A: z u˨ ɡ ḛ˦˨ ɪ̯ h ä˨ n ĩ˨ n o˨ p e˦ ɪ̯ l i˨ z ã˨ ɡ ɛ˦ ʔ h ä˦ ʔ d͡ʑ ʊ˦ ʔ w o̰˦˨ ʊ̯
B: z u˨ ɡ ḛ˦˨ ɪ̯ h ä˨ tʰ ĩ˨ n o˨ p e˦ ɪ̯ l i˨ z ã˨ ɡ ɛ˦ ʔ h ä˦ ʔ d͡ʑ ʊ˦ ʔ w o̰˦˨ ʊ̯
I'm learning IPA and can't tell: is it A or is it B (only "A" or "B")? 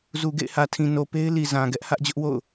B